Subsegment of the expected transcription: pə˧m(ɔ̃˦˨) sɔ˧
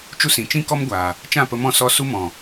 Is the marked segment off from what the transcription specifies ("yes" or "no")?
no